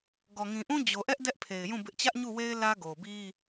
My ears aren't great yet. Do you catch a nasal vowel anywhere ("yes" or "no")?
yes